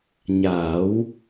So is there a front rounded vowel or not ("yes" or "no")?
no